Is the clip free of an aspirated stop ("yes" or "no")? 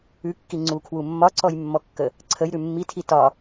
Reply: no